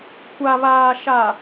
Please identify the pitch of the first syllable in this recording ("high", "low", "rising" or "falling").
low